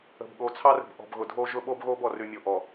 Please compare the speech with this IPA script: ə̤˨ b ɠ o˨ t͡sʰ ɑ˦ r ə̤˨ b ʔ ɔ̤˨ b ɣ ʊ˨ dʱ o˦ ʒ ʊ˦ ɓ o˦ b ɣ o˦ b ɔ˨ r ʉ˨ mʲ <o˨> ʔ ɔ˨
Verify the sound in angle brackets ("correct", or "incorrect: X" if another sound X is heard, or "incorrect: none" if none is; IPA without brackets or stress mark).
correct